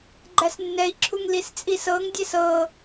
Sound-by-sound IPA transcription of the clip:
ɡ͡ǃæsnːɛi̯ǁʰuŋ list͡sʼisɤŋdʲɛs ɤ

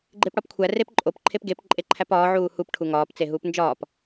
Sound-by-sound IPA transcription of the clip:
ɡ͡ǃepɽɒpkʷʰæ repǃʼop ǃʰepɡep ǃʼeǃʰæpɒː ʕuːhup ʈʰuŋɒːp t͡seɦuːpnd͡ʒɒːp

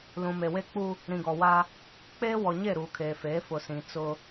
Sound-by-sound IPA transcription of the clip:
lũ˨ me˨we˦k͡pu˦ | ɾĩ˨ɡɔ˨wa˦ | k͡peː˦wɔ˨ ɲe˦˨ɾuː˨kʰeː˨feː˨˦ fʊ˨sĩ˨ t͡sʊ˦

